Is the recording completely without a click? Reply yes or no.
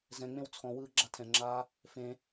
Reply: no